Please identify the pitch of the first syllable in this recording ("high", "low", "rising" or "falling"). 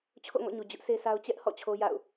falling